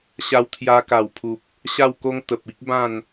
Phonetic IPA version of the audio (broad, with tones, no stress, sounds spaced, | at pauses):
ɕ a˧ w t̪ʰ j a˧ k a˨˩ w pʰ u˨ p̚ | ɕ a˥˧ w k o˦ ŋ t̪ ə˨ p̚ i˦ k̚ b ã˥˧ n